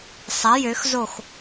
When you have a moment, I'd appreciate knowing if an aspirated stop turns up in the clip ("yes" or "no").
no